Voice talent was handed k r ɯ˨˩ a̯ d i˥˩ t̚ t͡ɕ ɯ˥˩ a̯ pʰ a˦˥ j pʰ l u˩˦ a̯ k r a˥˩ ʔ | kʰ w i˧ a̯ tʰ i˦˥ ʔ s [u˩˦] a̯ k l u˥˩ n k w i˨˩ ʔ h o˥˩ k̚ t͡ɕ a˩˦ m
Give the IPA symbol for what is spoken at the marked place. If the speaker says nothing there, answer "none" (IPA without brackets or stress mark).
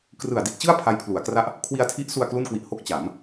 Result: u˧